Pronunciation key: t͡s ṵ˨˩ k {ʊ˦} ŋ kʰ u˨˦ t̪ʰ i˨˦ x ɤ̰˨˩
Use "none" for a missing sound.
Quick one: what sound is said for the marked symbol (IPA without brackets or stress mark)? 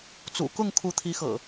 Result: ʊ˥˨